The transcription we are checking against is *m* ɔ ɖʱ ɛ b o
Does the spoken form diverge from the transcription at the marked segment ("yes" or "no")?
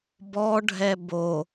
yes